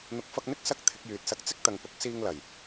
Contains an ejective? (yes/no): no